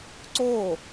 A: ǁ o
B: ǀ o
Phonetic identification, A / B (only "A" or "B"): B